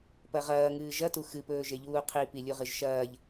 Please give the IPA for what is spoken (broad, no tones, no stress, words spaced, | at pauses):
pɐʁɐːŋɨː ʒɐtu xɨpɵːʒeʎuː qʰipilʲuʁɨʒ ʃɐːʎ